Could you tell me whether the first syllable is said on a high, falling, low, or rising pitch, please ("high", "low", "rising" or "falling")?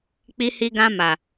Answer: high